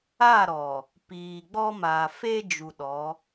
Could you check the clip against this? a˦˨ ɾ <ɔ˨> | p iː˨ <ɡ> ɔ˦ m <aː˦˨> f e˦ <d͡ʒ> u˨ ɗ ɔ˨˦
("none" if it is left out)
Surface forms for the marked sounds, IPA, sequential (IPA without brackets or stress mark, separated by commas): ɔ˨, ɡ͡b, aː˨, d͡ʒ